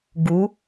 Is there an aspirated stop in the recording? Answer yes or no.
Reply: no